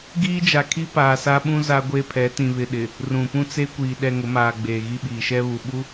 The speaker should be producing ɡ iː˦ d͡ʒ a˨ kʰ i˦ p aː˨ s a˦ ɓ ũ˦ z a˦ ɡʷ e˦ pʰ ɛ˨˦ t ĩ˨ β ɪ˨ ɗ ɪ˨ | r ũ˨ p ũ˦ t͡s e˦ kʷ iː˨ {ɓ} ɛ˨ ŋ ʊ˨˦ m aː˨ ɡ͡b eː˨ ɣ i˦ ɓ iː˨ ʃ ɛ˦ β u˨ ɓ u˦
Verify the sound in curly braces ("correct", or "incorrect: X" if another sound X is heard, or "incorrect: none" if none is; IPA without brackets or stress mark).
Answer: incorrect: ɗ